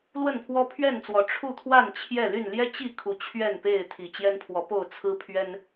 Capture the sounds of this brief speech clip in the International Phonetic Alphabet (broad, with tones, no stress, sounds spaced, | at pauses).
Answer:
l w ə˥˨ n pʰ w ɔ˦ pʰ ɥ ɛ˥˨ n t͡s w ɔ˨˦ ʈ͡ʂʰ u˥˨ t̪ʰ w a˥˨ n t͡ɕʰ j ɛ˥˨ l y˥˨ n l j ɛ˦ t͡ɕ i˥˨ kʰ u˨˦ t͡ɕʰ ɥ ɛ˥˨ n p e˥˨ ɪ̯ t̪ʰ i˨˩ t͡ɕ j ɛ˦ n pʰ w ɔ˨˦ p o˥˨ ʊ̯ t͡sʰ ɹ̩˦ pʰ ɥ ɛ˦ n